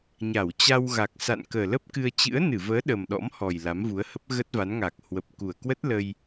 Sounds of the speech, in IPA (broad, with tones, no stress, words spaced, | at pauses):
ɲa˧˩wt͡ɕa˧wɣa˨˩k̚ sa̰˧˨nkəː˨˩lə˦˥p̚kɨ˧ə̯ t͡ɕɨ̰˧˥ə̯nɨ˧˩vəː˨˦ ɗə˨˩mɗɔ̰˧˥m hɔ˨˩j la˨˦mvu˨˦ə̯hə˦˥p̚ ɣə˦˥t̚va˨˦nŋaː˨˩k̚ hwə˨˩p̚ ku˨˩ə̯kwə˦˥t̚lə˧j